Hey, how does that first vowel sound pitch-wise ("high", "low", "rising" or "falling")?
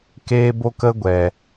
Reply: high